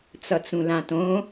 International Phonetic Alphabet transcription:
t͡sʌt͡sũlãtõ

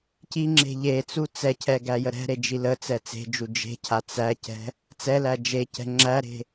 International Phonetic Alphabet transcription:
ciŋ͡ǁe̤ ʎet͡su t͡sɛcʰɛ ɡæjəɾɛ̤ɾe d͡ʒilət͡sɛ t͡se̤d͡ʒu d͡ʒe̤cʰa t͡sæcɛ̤ | t͡sɛlæ d͡ʒecɛ̤ ŋ͡ǁæɾe̤

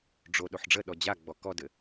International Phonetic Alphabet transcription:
ɖ͡ʐo ɗoħɖ͡ʐəɗɔ d͡ʑa ɡ͡bɔkɔdɘ

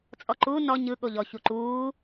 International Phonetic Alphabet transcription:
t͡sʼɔǃu nɔ ɲɯ ɠoʎɔ çuǃuː

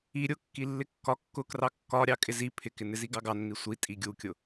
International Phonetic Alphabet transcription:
i ɾʲʊkːi lːɪkːɒ kːʊkrɑ kːɒɾʲɑ kʼɪzi pʰɪkɪnɪzi ɡɑɡɑnːi sʷi tʼiɡʲukʲʊ

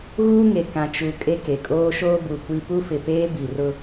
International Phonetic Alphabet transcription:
ɣuː˦ŋe˨ kã˨t͡ʃu˨ kʼe˦ke˨ kʼoː˦ʃoː˦bu˨kʷi˦ pu˦fɪ˨peː˦ bi˨rʊ˦

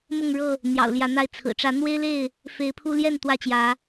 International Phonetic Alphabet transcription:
mʊ˥˨ŋɻɤ˥˨ | n̪jɑ̰˨˩ʊ̯ljä˨˦n̪a˥˨ɪ̯ t͡sʰɹ̩˨˩ ʈ͡ʂä˨˦ n̪we˦ɪ̯le˥˨ɪ̯ | fe˨˦ɪ̯pʰu˦ ljɛ˥˨n t̪wä˥˨t͡ɕjä˨˦

